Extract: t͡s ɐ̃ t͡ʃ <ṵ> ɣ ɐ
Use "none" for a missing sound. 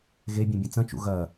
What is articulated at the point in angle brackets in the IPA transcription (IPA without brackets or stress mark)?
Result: ṵ